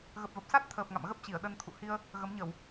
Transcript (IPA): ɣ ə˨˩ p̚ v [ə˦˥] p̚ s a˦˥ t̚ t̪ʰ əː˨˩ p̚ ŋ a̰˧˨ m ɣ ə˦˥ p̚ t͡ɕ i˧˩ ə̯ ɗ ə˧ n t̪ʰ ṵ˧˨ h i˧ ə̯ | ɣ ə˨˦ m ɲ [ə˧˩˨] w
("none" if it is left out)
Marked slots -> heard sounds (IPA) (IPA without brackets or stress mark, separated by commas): ə˨˩, ə˧˩˨